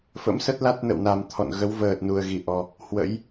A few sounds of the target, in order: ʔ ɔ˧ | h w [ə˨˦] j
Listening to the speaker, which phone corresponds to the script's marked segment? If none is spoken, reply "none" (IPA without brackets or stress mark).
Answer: ə̰˧˥